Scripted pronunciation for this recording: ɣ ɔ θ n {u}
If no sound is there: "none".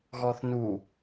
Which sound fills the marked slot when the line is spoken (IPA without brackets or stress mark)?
u